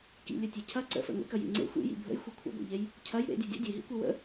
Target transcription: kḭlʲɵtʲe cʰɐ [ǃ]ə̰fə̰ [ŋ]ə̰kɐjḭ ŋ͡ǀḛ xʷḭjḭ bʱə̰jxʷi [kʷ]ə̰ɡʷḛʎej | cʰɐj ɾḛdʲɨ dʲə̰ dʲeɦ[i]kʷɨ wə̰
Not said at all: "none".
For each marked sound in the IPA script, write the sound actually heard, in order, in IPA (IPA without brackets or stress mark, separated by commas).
ǀ, ŋ, kʷʰ, ḭ